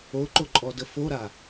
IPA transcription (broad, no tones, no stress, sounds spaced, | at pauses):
o ǃ o ǃʼ ɔ d ə f o ɾ a